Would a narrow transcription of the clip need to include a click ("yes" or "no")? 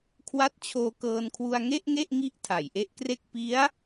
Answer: no